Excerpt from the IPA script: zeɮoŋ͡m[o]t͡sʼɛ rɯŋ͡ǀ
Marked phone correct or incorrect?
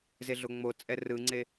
correct